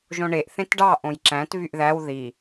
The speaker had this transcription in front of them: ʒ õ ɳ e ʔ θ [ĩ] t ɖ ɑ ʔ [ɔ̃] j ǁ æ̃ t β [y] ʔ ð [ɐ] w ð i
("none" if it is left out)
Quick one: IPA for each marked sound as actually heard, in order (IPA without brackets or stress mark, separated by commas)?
ẽ, õ, y, æ